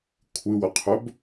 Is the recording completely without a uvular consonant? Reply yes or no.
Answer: no